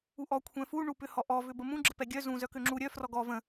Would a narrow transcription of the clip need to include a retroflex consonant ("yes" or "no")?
yes